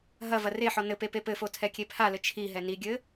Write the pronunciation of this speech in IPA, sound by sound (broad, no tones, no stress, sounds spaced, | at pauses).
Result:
ɦ ɐ v ɐ r e ħ ɔ n ɘ p e p e p ɘ f o tʰ ɛ kʲ e pʰ a l ɘ t͡ʃʰ i ɦ ɛ n i ɡʲ ɘ